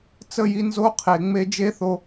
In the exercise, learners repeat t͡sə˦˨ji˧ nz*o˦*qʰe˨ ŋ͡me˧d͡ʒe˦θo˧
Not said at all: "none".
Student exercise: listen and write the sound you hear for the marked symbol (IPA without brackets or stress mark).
o˦